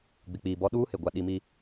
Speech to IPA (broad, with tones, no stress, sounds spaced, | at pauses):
ɡ͡b ɪ˨ k͡p iː˨ b ɔ˦ ɗ uː˦ h ɪ˨ ɡʷ a˨ ɗ i˨ m i˨